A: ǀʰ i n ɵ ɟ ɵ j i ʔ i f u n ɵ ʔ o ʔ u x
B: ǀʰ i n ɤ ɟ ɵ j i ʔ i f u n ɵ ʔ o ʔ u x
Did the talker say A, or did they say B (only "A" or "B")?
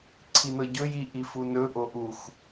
B